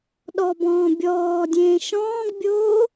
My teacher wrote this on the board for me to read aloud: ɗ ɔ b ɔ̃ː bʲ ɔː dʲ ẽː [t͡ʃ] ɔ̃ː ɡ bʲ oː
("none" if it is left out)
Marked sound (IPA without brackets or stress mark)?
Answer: ʃ